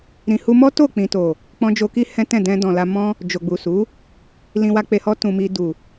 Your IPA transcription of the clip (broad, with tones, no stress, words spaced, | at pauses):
ɾĩ˨hu˧mɔ˦to˦˨ k͡pĩ˨to˨ | k͡pɔ̃˧d͡ʒo˧ki˦ hɛ̃˦tɛ̃˦˨ dɛ̃˧ dɔ̃˨la˧mɔ̃˦ | d͡ʒo˨ɡ͡bu˨su˨˦ | lĩ˧wa˧k͡pe˧hɔ˦ tũ˧mi˧ du˨